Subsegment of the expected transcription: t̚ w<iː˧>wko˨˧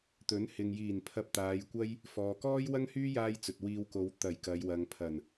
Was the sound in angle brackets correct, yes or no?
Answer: yes